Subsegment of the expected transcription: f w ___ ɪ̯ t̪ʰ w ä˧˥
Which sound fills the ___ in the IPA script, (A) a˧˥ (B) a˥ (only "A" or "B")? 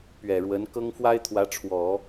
B